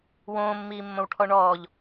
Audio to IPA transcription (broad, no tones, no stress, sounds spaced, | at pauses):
w õː mː iː mː õ w ʈʰ ɔ ɳ ɔː ʎ